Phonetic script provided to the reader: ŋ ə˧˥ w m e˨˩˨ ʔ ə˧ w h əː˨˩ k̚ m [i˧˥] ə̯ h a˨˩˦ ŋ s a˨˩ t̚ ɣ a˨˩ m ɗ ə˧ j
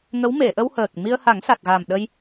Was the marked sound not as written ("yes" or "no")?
yes